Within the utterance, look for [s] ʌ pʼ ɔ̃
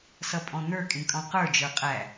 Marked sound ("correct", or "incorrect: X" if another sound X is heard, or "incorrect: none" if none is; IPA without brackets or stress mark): correct